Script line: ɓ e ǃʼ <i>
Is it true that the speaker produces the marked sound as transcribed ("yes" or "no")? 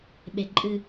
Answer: no